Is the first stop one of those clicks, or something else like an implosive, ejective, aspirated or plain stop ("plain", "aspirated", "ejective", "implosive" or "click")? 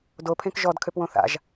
plain